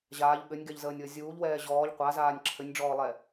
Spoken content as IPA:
ʑ aː ʎ ɠ ɘ nʲ ɡ ɛ ʎ z əː nʲ w ə zʲ uː ʎ w ɛː ʑ ɔː ʎ qʷ a z aː nʲ ǁʰ ɘ nʲ ɖ͡ʐ ɔː lˠ ɛ

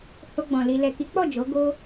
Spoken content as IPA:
h o˧ ɡ͡b ɔ̃˨ l i˨ l ɛ˨ k i˨˦ k͡p ɔ˦˨ d͡ʒ o˨˦ ɡ o˦

